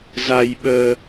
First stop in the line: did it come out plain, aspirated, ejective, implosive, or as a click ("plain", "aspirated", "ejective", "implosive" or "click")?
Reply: implosive